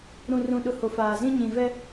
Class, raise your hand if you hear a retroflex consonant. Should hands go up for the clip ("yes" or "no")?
no